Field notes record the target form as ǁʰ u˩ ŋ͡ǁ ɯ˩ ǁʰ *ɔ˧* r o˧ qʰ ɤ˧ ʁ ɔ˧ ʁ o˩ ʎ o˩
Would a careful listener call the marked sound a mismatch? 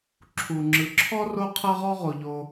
no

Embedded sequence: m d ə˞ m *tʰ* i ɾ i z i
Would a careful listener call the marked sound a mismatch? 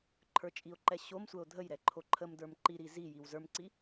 yes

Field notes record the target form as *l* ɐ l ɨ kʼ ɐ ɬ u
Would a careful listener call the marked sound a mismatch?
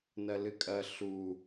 yes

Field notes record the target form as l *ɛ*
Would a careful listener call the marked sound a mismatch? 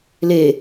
yes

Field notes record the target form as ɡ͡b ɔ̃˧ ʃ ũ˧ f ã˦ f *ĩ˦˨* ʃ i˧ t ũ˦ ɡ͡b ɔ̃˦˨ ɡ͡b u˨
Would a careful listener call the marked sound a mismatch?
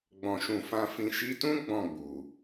no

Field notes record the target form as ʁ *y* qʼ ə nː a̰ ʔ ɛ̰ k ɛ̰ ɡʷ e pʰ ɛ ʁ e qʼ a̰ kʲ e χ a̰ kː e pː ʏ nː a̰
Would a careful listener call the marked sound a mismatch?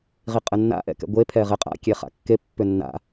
yes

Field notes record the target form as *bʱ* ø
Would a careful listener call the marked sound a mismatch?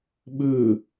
yes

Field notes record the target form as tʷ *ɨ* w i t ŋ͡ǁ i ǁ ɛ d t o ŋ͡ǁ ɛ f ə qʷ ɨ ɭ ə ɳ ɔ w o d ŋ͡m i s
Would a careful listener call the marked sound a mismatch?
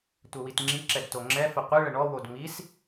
yes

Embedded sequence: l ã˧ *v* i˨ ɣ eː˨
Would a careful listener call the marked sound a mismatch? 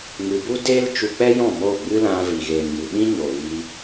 no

